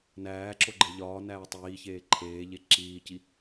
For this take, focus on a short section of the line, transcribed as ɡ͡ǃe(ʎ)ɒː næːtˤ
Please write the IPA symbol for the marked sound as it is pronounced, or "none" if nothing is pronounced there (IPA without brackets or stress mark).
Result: ʎ